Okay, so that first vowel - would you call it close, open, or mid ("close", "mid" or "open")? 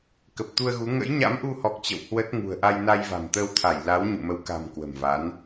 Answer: mid